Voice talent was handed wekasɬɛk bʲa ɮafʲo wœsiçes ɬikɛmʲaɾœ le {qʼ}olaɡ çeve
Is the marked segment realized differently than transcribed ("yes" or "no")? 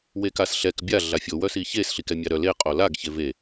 no